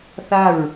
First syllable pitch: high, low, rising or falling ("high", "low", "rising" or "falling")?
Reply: falling